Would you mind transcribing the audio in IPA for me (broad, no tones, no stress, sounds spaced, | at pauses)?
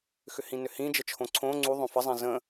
x ʏ h ĩ n ʏ h ĩ d͡ʒ ə t͡ʃʰ õ ǀʰ õ ŋ͡ǀ u ðˤ õ f ə zˤ ĩ z ə̃